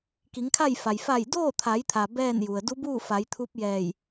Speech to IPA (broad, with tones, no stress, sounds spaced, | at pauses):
k i˩˧ ŋ kʰ a˥˨ j f a˩ j f a˧˩ j d oː˥˨ t̪ʰ a˩˧ j t̪ʰ a˩ b ɛː˥˨ n j u˩ ə̯ d u˧˥ b uː˥˨ f a˩˧ j t̪ʰ u˧˥ p̚ j ɛː˧˩ j